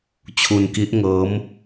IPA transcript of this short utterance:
t͡ɕʰ u˧ n k i˦˥ ʔ ŋ ɤː˦˥ m

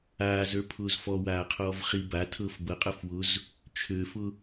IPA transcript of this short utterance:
aː z ə˞ pʰ ʊː z f ɔ w aː qʰ ɔː v χ i b a tʰ ɤ f b ɤ qʼ ɤ f w ʊ z | t͡ʃʰ ø f ʊ

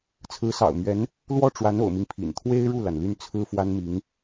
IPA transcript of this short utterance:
t͡sʰ ɹ̩˧˥ s ɑ̰˨˩ ʊ̯ m ɥ ɛ˧˥ n | l w ɔ˥˩ ʈ͡ʂ w a˧˥ n o̰˨˩ ʊ̯ m i˦ ŋ pʰ ḭ˨˩ n t̪ʰ w e˥ ɪ̯ ɻ u˥˩ l a˩ n l y˥˩ n t͡sʰ ɹ̩˥ f w a˥ n m i˧˥ ŋ

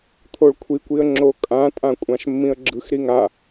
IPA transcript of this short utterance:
t̪ʰ o ɭ kʷʰ i kʷ i ə̯ ŋ͡ǁ o kʼ ã tʼ ã kʷʼ ã ʃ mː ĩ ə̯ ɡ͡ǁ ɯ x ɾ i ŋ a

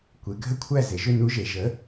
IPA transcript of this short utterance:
kʷ e˩˧ ɡʱ ə˥˨ kʷʰ æ˥˨ z e˩˧ ʒ ʏ˥˨ n u˧˥ ʒ e˩˧ ʒ ə˩˥

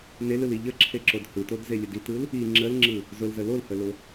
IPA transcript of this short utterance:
n e l ɯ l i ʎ ə ǁʰ e ǁ o d h ɯ t o d z e lʲ ə d i t ɯ l | i ŋ͡ǁ ə l ŋ͡ǁ ɯ | z ʊ l z ə l o l h ə l ʊ

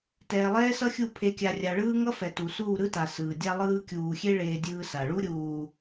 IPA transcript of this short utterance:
t ɛː˨ lˠ ɛː˦ s ʌ˦ xʲ u˦˨ pʰ e˨ kʲ a˨ rʲ a˨ ɭ ɯː˦ ŋ ʌ˦ f ɛ˨ t u˨ s uː˦˨ ɾ ɯ˦ t a˨ s ɯː˨ dʲ a˦ lˠ ɯː˦ kʲ uː˨ xʲ e˦ ɭ eː˦ dʲ ɯː˦ s a˨ ɭ u˦ ɾʲ uː˨

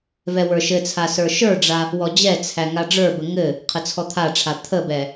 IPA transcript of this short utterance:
v ɛ w ə˞ ʃ ɘ t͡sʰ a s ə˞ ʃ ə˞ ɖ͡ʐ a | w ɔ d͡ʑ ɛ t͡sʰ æ ŋ a ɖ͡ʐ ə˞ b ə ŋ ɘ | qʰ ə t͡sʰ ɔ t̪ʰ a ʈ͡ʂʰ a t̪ʰ ə b ɛ

